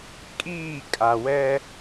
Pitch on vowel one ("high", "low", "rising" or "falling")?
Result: falling